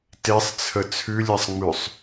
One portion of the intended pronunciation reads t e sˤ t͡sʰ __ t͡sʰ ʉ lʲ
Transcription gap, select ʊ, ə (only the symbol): ə